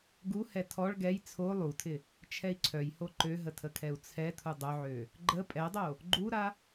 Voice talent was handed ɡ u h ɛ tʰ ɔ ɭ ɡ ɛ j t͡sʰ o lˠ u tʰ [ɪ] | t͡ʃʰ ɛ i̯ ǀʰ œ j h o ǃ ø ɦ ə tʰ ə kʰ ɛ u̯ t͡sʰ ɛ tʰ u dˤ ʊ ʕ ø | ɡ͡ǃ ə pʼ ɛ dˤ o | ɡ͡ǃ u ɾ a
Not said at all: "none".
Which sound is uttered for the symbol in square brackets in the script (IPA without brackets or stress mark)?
ɪ